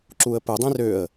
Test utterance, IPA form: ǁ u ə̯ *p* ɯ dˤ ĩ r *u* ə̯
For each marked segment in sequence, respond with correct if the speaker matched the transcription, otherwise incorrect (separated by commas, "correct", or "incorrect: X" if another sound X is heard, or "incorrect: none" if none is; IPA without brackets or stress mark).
correct, incorrect: ø